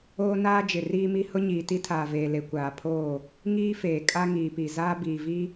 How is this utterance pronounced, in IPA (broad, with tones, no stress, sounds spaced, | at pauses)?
oː˦ n aː˦ d͡ʒ ɪ˨ r iː˦ m i˦ h ʊ˦ ɲ iː˨ t i˦ tʰ aː˨ v eː˨ l e˨ kʷ aː˨ pʰ oː˦˨ | ŋ iː˦ f eː˨ kʼ a˦ ŋ iː˨ p i˨ z aː˦ b iː˨ v i˦